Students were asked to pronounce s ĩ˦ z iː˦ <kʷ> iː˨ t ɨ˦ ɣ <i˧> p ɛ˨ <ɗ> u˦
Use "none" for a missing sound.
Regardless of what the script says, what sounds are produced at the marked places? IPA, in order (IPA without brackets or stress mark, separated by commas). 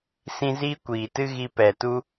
kʷ, i˧, t